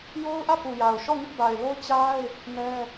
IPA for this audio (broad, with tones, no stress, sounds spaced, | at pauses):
j o˦ ʊ̯ ʔ ä˦˨ p u˨ j a˨ ʊ̯ ʃ ɔ˦˨ ŋ ɪ˦ ʔ b a˨ ɪ̯ l o˦ ʊ̯ t͡ɕ a˦ ɪ̯ | n ɛ˦